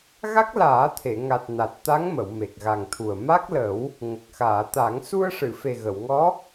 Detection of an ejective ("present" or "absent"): absent